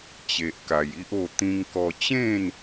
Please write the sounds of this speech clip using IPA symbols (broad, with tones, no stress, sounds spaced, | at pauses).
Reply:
t͡ɕ e˨ ʔ k a˨˩ j i˦ ʔ o˥˧ t̪ ĩ˧ ŋ k ɔ˧ t͡ɕ ẽ˥˧ n